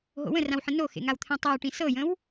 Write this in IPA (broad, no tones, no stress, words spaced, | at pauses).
ɦo̰wə̃rãwħə̃ noxḛŋawt̪ʰẽ tˤiwʈĩ sɤjə̃w